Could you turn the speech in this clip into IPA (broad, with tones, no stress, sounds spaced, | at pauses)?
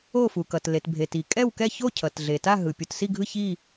o˥˧ f u˨ k ʌ˨ t l e˨ t bʱ e˨ t i˨ kʼ ɛ˥˧ w k ɛ˥˧ ç o˥˧ cʰ ʌ˨ t ɮ e˨ t a˥˧ ɦ ɯ˨ pʲ u˨ t s i˥˧ ɡʱ ɯ˥˧ ç i˥˧